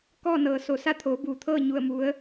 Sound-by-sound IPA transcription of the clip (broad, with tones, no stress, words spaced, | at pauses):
kɔː˥˨nɤː˩so˧˩ sa˥˨t̪ʰoː˩˧buː˩t̪ʰɤː˥˨ ɲu˥˨ə̯mu˧˥ə̯